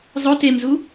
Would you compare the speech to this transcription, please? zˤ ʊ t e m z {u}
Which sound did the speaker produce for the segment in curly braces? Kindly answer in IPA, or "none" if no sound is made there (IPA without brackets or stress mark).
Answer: u